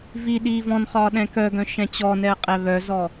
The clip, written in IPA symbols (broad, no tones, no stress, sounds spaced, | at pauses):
v i ɗ iː v ɔ̃ n χ ɒː ɗ ɛ̃ k œ ɡ œ̃ ʃ ɛ̃ t͡ɕ ɔ n ɛ ə̯ qʼ ɛ β œ z ɔ